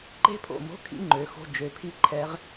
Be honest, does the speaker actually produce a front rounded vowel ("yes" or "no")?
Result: yes